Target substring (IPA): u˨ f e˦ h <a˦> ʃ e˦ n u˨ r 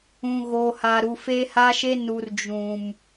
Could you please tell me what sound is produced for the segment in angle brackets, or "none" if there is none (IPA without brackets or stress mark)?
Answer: a˦